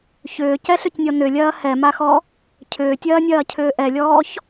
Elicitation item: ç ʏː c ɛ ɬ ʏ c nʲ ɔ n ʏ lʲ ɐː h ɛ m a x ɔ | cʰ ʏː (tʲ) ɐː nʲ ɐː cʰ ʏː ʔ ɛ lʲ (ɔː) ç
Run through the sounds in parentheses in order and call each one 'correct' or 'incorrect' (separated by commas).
correct, correct